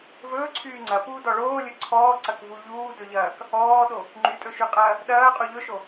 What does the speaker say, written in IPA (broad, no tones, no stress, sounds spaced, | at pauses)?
v ɵː ǀʰ yː ŋ͡ǀ ɐ p uː d ɔ ɭ oː lʲ ɵ ǀʰ ɔː ǀ ɐ k v u ʎ uː d ɵ ʎ ɐː k | ɔː ɗ o | ŋ͡ǃ y tʼ ɵ ʃ y qʼ ɐː | ɗ ɐː qʼ u ʎ ɵ ʃ o